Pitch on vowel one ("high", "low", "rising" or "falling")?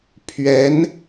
rising